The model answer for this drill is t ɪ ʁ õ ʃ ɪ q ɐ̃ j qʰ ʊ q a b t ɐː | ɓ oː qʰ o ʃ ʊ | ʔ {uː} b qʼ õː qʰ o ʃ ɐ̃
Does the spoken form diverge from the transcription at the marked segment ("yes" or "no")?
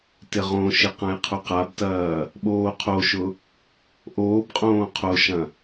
yes